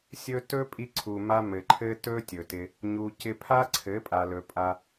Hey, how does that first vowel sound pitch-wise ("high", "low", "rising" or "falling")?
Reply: high